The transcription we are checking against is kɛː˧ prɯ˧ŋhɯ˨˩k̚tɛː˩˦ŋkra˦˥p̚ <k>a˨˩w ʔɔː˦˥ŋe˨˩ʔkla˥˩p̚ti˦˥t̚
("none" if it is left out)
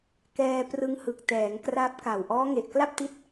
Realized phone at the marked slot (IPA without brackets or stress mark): k